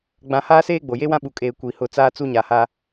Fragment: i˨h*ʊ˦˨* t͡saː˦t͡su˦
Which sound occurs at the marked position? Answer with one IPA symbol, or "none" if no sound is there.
ʊ˦˨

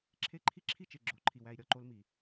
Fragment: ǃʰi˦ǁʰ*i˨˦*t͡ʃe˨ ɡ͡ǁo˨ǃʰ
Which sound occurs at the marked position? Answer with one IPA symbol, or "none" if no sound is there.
i˦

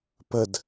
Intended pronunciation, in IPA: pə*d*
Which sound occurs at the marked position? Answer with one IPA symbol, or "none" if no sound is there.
d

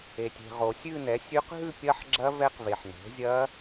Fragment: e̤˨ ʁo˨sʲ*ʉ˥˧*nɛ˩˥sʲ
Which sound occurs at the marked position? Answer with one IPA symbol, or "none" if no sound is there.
ʉ˥˧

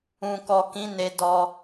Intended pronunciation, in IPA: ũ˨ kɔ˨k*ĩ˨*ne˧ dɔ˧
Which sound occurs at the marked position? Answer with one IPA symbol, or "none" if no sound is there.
ĩ˨˦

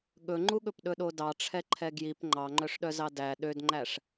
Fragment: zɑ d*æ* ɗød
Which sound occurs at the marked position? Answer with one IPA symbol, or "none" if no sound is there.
æ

